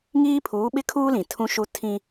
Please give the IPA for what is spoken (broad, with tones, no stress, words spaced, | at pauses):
ŋiː˦pʰuː˨˦ɓɪ˦kʰuː˦ lĩ˨tʰũ˦ʃu˦ tʰĩ˦